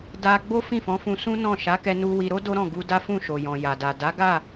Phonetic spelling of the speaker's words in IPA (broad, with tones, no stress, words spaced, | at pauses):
da˧ ɡ͡bo˦fĩ˦˨fɔ̃˨˦fũ˧ sũ˦nɔ̃˦˨ ʃa˨˦kɛ˧nu˧ wi˧ɾo˦ do˦ɾɔ̃˦˨ɡu˧da˦ fũ˦˨ʃo˨jɔ̃˨ ja˨da˨ da˨˦ɡa˦˨